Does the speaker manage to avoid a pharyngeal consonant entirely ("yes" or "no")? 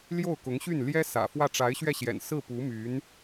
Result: yes